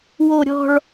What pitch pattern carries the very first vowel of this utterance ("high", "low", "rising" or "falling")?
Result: falling